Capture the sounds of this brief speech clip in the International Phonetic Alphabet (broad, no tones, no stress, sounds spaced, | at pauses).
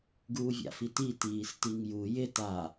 ɡ uː vʲ a̰ f i t i t iː s t i ŋ j u j ɪ t a